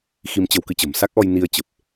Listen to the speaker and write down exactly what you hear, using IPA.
x i˧ m t͡ɕ ə˧ w k ɨ˧ t͡ɕ ə̤˨˩ m s a˦˥ k̚ ʔ ɔ˧ j n i˧ ə̯ t͡ɕ ə˨˩ p̚

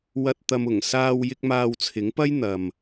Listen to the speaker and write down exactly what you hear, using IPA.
w ɐ˧ t̚ t̪ ɐ˧ m ʊ˨˩ ŋ s aː˧ w j ɪ˧ k̚ m aː˧ w t͡sʰ ɪ˨˥ ŋ p ɐ˥ j n̪ ɐ˨ m

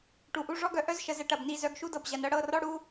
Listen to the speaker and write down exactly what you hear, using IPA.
ʈ u˨ ʔ u˧ ʐ ɔ˦ ɡ œ˧ ʔ œ˦ z ʃ ə˨ z ə˧ ʈ ɐ˨ b n i˦˨ z œ˧ ɡ ʃ u˦ d ɤ˨ b ʑ ɐ˨ n ɤ˧ ɽ ɤ˦˨ r ɔ˦ ɽ u˦

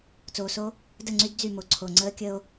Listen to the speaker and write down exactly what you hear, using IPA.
t͡s oː˨ s o˦ | d ə˦˨ ŋ͡ǀ y˦ d d͡z y˦˨ m o˨ ǀʰ o˨ ŋ͡ǀ əː˦ kʲ ə˦ o̯

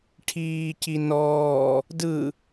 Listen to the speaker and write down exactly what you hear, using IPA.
ʈʰ iː c i n ɔː | d ɯ

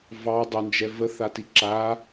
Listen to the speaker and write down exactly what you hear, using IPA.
v ɑ dˤ ʊ n d͡ʒ ɛ v ə θ a t i ǁ a

